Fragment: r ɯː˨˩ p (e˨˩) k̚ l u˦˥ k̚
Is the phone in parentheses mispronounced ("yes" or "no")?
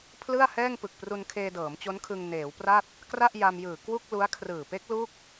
yes